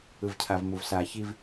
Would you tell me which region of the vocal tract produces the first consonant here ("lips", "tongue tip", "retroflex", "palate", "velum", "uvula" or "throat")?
lips